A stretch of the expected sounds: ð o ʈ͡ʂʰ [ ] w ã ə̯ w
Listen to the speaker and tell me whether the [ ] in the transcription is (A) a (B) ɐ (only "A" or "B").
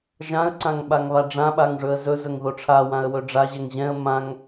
A